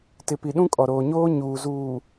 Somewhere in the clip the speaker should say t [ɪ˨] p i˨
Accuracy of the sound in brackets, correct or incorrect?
correct